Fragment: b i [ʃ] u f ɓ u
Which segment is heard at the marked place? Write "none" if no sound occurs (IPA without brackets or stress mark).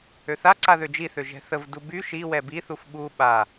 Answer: θ